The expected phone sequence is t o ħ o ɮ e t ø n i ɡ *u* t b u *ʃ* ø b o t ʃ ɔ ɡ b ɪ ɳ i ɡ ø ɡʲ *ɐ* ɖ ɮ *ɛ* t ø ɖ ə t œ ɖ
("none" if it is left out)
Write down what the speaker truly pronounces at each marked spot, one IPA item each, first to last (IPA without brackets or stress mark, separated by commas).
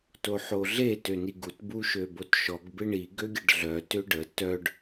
u, ʃ, ɐ, œ